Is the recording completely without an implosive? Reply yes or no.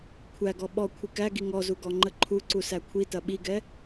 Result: no